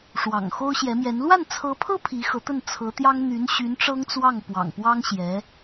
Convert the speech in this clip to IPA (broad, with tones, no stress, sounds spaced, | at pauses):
ʂ w ɑ̰˨˩ ŋ x o˥ ʊ̯ ɕ j ɛ˧˥ m j ɛ˧˥ n l w a˥˩ n t͡sʰ ɤ˧˥ pʰ ɤ˥ pʰ i˧˥ x ɤ˧˥ t̪ ə˥˩ n t͡sʰ ɤ˧˥ t̪ j ɑ˥ ŋ n̪ y˧˥ n ɕ y˧˥ n ʈ͡ʂ ɤ˥ ŋ t͡s w ɑ˥˩ ŋ p w ɑ̰˨˩ ŋ p w ɑ˥ ŋ ɕ j ɛ˧˥